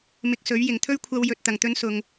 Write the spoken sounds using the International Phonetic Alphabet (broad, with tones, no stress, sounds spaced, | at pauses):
m ɪ˧ k̚ s ɵ˨˥ ɥ j ɪ˨˩ ŋ t̪ʰ ɵ˥ ɥ kʷʰ ɐ˧ w j ɵ˨ t̚ t̪ ɐ˨˩ ŋ t̪ ɵ˧ n s ʊ˨ ŋ